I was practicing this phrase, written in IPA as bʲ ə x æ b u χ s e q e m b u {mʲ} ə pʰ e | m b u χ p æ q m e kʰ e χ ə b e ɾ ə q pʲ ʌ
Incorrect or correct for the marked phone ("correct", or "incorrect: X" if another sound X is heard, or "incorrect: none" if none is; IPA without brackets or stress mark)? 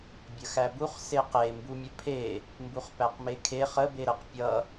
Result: correct